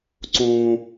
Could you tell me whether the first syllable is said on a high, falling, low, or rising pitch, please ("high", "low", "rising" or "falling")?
low